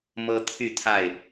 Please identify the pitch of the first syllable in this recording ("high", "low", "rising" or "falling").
high